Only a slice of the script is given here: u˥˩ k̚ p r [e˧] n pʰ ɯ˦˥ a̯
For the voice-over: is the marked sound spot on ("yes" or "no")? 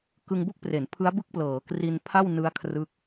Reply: no